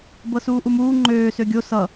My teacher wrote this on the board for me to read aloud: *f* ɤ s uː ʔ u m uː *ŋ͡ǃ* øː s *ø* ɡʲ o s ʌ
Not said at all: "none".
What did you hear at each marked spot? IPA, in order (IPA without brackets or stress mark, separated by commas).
b, ŋ͡ǃ, ø